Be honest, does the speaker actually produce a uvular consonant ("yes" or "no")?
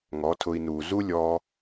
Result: no